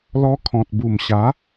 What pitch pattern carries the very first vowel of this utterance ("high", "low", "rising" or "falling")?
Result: high